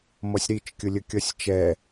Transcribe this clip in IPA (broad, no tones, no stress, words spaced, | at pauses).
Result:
mʌsʲɾit͡ʃkʲʊlʲə kʲʌsʲt͡ʃɛ